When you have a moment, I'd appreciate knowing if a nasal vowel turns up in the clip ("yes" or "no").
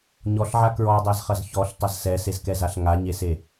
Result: no